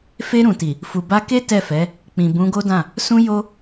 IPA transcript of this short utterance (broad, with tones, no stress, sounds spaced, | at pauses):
f e˧ ɾ ũ˨ t i˨ | f u˨ b a˧ k e˦ t ɛ˦˨ f ɛ˨˦ | k͡p ĩ˨ b ũ˨˦ ɡ o˦ d ã˦˨ | s ũ˧ j o˧